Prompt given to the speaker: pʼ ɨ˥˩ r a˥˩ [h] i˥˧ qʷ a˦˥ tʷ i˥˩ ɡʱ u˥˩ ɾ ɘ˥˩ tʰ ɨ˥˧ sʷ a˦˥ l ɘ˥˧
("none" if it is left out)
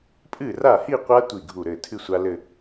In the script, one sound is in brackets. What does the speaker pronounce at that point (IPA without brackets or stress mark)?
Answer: h